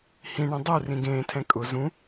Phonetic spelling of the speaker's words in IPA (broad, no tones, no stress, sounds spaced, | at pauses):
h ĩ ɳ ẽ dˤ u r ĩ ɡ ẽː tʰ ɛ̃ kʼ ʊ z ũ